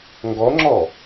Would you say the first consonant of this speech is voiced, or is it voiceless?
voiced